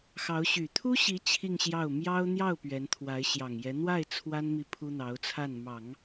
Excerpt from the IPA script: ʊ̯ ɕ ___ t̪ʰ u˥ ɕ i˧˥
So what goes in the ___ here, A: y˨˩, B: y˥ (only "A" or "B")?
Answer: A